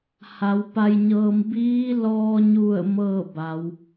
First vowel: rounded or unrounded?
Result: unrounded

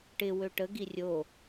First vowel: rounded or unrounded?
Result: unrounded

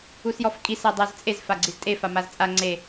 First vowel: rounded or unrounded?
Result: rounded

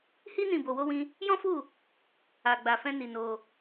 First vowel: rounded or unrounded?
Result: unrounded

